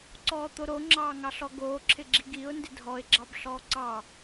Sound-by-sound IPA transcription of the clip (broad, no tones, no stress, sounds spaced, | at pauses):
ǀ ɔː t̪ o ɾ o ŋ͡ǁ ɑː ŋ ɑ ɬ ɔ ɡ oː ǁʰ ɪ ɡ͡ǁ i ɡ i ʊ̯ n d ɪ dʱ ɔ ɪ̯ ɡ͡ǁ ɑ b ɬ ɔː ǀ ɑ